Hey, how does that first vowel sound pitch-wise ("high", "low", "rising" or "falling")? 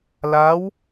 rising